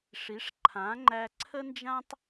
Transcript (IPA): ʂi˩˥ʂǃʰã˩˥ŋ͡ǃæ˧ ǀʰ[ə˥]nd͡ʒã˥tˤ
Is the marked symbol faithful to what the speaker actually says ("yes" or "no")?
yes